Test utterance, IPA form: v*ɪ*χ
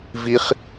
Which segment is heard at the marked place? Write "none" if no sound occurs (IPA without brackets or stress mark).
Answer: i